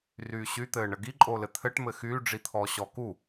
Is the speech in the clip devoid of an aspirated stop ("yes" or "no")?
no